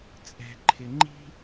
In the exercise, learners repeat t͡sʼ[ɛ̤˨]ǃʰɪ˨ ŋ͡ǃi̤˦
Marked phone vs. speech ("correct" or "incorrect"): correct